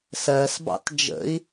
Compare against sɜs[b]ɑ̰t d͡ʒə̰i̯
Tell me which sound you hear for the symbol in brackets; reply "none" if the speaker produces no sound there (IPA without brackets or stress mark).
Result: b